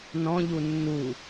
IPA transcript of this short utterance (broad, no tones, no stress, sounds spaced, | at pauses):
n ɔ̃ ʎ u nː u